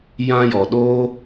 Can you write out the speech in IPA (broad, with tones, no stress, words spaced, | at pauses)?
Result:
jã˧jɔ˨ɗoː˦